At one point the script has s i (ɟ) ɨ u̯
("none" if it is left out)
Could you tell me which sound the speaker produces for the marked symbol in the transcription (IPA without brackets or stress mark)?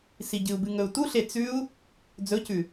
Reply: ɟ